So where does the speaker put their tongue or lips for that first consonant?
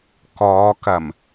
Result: velum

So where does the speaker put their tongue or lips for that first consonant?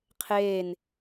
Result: uvula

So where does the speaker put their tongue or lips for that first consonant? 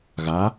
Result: velum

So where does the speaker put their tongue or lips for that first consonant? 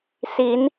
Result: tongue tip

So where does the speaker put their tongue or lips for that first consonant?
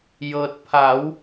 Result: palate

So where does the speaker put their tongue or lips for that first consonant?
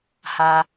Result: throat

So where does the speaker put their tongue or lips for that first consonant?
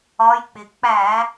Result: palate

